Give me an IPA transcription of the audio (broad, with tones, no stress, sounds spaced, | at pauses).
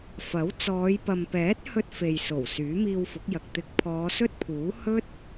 f ɐ˨˥ w t͡s ɔː˨˧ j p ɐ˨ m p ɛː˨˥ t̚ h ɵ˧ t̚ f e˨ j s o˨˩ w s yː˨˥ m iː˧ w f ʊ˨˥ k̚ j ɐ˨ k̚ t̪ ɪ˨ k̚ pʰ ɔː˨˧ s ɵ˥ t̚ pʰ uː˨˥ h ɵ˥ t̚